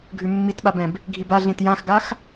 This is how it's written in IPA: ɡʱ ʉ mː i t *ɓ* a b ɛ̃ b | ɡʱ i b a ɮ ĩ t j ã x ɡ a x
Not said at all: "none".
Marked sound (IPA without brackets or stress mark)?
ɓ